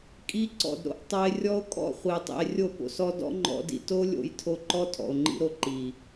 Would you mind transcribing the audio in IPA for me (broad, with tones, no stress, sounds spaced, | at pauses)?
kʼ i˧ ǀ ɔ̰˨ d ɾ o̰˧ ʔ tˤ ɤ˧ e̯ rʲ ɔ˦ o̯ kʼ ɔ̰˦˨ χʷ i˨ e̯ tˤ ḭ˨ e̯ rʲ o˦˨ p o̰˧ s ɔ˦ d ɔ̰˦ ŋ͡ǃ ɔ̰˧ d ḭ˨ t o˦ lʲ o̰˧ j tʰ o˧ ǃ ɔ˦ tʰ ɔ̰˨ o̯ ŋ͡ǃ ḭ˧ ɾ o˧ ǃ i˨